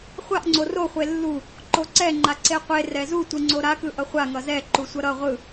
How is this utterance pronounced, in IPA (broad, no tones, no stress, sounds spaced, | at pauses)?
χʷ a ʔ ŋ͡ǀ o r o χʷ e lː u | ǃ o ǀ ɛ ŋ͡ǃ a ǀ e qʷ e r ɛ z u tʷ ɯ ŋ͡ǀ o ɾ a k ɯ ʔ ʌ χʷ a ŋ ʌ z ɛ ǃ u sʷ ʌ ɾ ʌ ʁʷ ɯ